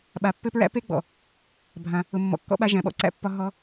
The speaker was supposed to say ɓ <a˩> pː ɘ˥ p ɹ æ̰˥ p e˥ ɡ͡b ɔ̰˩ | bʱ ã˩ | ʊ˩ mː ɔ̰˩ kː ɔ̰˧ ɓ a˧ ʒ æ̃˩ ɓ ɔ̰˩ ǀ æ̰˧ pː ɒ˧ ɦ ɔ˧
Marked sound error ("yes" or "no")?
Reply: no